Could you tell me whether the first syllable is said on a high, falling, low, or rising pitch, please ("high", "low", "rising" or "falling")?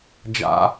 high